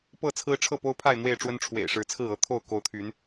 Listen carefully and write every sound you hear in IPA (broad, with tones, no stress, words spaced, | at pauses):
pɤ˥˨t͡sʰɹ̩˦ ʈ͡ʂʰɤ˥˨po˦ʊ̯pʰa˥˨ɪ̯ n̪we˥˨ɪ̯ʈ͡ʂwə˦n ʈ͡ʂʰwḛ˨˩ɪ̯ʂɻ̩˨˦t͡sʰɹ̩˥˨ɤ˥˨ t̪ʰo˥˨ʊ̯ko˨˦ʊ̯ t̪ʰy˨˦n